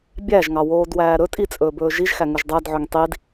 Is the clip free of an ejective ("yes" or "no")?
no